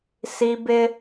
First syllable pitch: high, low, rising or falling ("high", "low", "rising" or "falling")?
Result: high